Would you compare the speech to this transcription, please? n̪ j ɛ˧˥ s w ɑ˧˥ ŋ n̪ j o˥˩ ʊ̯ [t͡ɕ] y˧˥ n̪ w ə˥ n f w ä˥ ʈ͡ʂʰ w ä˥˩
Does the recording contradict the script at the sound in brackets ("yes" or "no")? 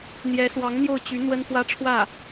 no